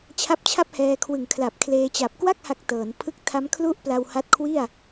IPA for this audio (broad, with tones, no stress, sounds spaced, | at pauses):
t͡ɕʰ a˦˥ p̚ t͡ɕʰ a˥˩ p̚ h ɛː˧ kʰ w ɯ˨˩ ŋ kʰ l a˨˩ p̚ kʰ l eː˧ t͡ɕ a˨˩ p̚ k w a˥˩ k̚ h a˨˩ k̚ t ɤː˩˦ n pʰ ɯ˥˩ k̚ tʰ a˦˥ m kʰ l u˥˩ ʔ p l a˧ w h a˦˥ t̚ kʰ w i˥˩ a̯